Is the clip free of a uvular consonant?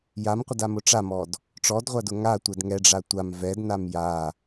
no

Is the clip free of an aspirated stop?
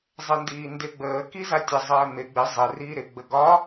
yes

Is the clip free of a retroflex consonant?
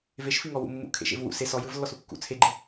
yes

